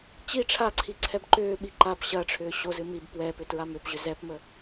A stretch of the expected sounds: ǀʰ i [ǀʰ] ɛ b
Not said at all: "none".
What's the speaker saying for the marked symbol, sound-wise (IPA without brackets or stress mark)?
ǀʰ